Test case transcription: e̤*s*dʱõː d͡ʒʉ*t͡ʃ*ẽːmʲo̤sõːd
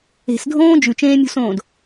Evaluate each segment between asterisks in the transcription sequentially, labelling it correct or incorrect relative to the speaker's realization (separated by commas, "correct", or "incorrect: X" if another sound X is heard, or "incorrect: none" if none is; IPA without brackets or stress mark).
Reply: correct, correct